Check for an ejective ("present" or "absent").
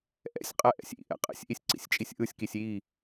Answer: present